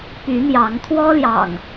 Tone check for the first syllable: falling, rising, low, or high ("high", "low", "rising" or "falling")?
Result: rising